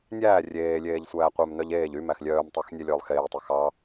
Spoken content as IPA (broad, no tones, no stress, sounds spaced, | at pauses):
nʲ æː rʲ eː lʲ eː ʎ sʷ æː qʷ œ m n œ ʎ eː ʎ y m æ x lʲ œː m tˤ ɑ x nʲ ɛ lʲ ɵː lˠ x eː tˤ ɛ x ɑ